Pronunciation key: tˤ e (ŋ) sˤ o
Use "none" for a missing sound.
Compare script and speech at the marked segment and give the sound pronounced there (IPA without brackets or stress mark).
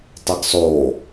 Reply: ɡ